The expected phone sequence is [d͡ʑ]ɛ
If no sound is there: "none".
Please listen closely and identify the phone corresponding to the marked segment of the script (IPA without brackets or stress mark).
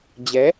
d͡ʑ